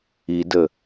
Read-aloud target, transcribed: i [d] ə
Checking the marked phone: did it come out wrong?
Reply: no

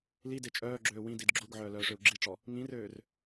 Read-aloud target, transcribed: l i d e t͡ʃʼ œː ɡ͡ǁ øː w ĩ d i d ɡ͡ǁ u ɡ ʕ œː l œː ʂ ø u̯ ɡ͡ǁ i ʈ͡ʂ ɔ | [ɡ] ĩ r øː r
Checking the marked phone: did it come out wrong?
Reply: yes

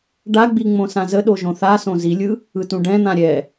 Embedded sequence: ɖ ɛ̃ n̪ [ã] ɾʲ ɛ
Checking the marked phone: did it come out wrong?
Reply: no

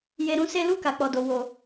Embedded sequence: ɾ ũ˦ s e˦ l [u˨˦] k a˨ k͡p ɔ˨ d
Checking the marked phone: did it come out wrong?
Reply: yes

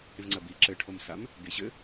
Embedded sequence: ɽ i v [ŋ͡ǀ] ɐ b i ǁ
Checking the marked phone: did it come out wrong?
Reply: no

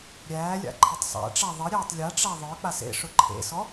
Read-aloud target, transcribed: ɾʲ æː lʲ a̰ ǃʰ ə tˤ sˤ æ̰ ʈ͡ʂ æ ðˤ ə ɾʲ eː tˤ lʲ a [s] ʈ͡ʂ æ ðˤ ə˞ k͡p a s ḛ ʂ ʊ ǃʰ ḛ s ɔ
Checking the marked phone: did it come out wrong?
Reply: yes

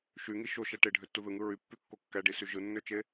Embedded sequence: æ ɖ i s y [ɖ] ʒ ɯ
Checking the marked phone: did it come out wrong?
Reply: yes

